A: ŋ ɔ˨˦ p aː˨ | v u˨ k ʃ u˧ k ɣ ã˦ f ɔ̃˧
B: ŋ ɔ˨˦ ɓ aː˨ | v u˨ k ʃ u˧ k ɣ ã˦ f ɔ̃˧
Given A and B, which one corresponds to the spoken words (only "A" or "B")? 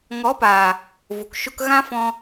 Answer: A